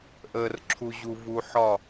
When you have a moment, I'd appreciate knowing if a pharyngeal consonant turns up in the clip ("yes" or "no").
yes